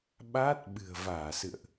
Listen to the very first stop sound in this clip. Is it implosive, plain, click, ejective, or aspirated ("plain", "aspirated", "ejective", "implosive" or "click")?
implosive